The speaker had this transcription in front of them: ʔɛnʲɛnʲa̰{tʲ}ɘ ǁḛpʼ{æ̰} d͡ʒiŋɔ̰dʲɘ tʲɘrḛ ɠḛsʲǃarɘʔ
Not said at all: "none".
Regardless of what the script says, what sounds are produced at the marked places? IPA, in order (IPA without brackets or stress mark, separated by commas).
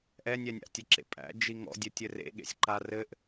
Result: tʲ, æ̰